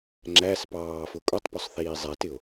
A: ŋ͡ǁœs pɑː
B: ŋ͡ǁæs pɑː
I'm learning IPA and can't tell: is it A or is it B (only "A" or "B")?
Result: B